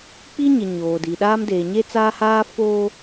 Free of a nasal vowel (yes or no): yes